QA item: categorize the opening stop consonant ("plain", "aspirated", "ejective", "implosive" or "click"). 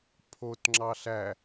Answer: aspirated